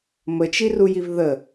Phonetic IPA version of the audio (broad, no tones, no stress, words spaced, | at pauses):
mət͡ʃirujiv ðə